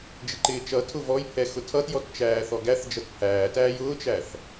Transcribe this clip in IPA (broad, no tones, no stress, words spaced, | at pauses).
d͡ʒɪǃɪːt͡ʃʌtʰʊ vɔj pʰɛxʊtʰʌtjɔt t͡ʃæːθɔɡæθd͡ʒʌt pʰæːtæːj ʊːt͡ʃæθ